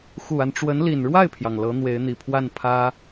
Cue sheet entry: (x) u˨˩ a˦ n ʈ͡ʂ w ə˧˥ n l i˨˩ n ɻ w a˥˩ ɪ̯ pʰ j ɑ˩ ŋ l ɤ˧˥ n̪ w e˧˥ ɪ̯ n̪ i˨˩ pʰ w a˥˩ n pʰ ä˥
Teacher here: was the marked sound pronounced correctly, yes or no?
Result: yes